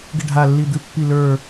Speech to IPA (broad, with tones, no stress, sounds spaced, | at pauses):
ɡ ɪ˦˨ ɖʱ a˦˨ lː i˦˨ d̪ ʉ˦ pː i˦˨ l ə˞˦˨